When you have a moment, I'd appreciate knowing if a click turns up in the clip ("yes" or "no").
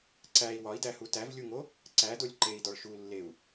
yes